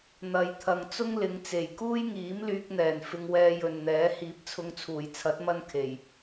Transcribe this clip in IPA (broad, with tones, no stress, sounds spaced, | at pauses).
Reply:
n̪ ɐ˨ j t̪ʰ ɐ˨ ŋ t͡s ʊ˥ ŋ l ɪ˨˧ ŋ t͡s e˨˩ j k uː˥ j ŋ iː˨˥ m l yː˧ k̚ n̪ ɛː˨˩ n f ɪ˧ ŋ w ɛː˧ j ɵ˨ n n̪ ɛː˨˥ h iː˨ p̚ t͡sʰ ʊ˧ ŋ t͡sʰ uː˨˩ j t͡sʰ ɐ˨˥ t̚ m ɐ˥ n kʰ e˨˩ j